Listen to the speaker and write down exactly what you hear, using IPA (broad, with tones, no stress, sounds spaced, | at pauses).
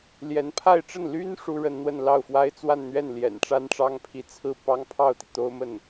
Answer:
l j ɛ˧˥ n pʰ a˥˧ ɪ̯ ʈ͡ʂ ə˥˩ n l y˥ n ʂ u˥ ɻ ə˥ n n̪ w ə˥˧ n l ɑ˥˩ ʊ̯ f w a˥ ɪ̯ t͡s w a˥˧ n n̪ ɥ ɛ˥˩ n l j ɛ̰˨˩ n ʈ͡ʂ a˥ n ʈ͡ʂ ɑ˥ ŋ pʰ i˧˥ t͡sʰ ɹ̩˥˩ p ɑ˥ ŋ pʰ ɑ˥˩ ʊ̯ t̪ i˩ t̪ o˥ ʊ̯ m ə˥˩ n